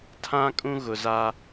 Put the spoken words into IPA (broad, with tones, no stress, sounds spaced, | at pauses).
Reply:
tʰ ã˦ kʼ ũ˦ ɣ ʊ˨ z aː˦